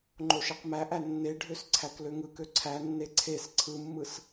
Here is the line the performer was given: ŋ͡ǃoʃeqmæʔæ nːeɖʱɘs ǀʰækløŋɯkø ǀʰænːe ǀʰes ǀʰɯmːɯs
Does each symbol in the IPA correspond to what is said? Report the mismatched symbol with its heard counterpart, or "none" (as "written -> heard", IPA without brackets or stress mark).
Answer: ɘ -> ø